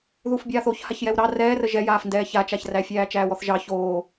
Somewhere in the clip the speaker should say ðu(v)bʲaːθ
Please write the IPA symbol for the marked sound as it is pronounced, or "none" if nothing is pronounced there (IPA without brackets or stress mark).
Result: f